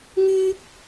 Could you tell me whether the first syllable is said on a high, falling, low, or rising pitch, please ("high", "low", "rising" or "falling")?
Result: high